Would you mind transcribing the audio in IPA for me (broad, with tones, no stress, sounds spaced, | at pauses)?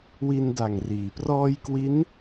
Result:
w i˧ n d a˨˩ ŋ r iː˩˦ p r ɔː˧ j k w i˦˥ n